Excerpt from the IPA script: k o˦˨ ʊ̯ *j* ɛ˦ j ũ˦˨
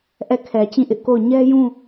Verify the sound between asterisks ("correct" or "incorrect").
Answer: incorrect